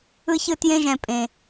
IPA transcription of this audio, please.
ɯ˦ ç ɯ˦ t j ẽ˦ ʒ ɛ̃˨ pʼ ẽ˨

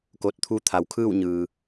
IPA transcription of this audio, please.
k o˧˩ t̚ t̪ʰ u˧˥ t̪ʰ a˩˧ w kʰ ɯː˥˨ w ɲ ɯː˩

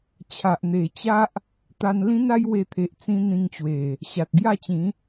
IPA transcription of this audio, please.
t͡ɕʰ a˨ ʔ n̪ e˨˩ t͡ɕ a˦ ʔ | t̪ a˧ n l ĩ˦ n a˦ j w e˧ t̪ʰ e˨ ʔ t͡s ĩ˧ n̪ ĩ˧ ŋ t͡ɕ w e˨˩ | ɕ a˨ t̚ ɡ j a˥˧ t͡ɕ ĩ˨˦

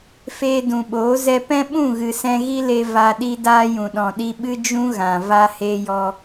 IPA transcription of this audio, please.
f eː˧ d ũ˨ ɓ oː˨˦ z ɛ˦ p ɛ̃˦ ɓ ũ˦˨ ɣ ɨ˨ s ɛ̃˧ ɣ i˦ l e˧ v a˨ ɗ i˧ d aː˧ j ũ˨ ɗ ɔ̃˨ ɗ i˧ ɓ ɨ˦ d͡ʒ ũ˦ ɣ ã˨ v a˧ h e˧ j ɔ˧

